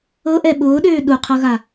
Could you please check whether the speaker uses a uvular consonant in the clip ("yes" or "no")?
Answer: yes